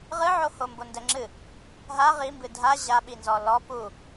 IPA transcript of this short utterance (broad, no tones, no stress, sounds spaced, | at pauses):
ʁ ɨ ʕ o h o m b o n d ɛ ŋ͡ǁ ɨ | ɦ a ʁ i m b ɨ dʱ a ʑ a ɓ i n z ɔ l ɔ p u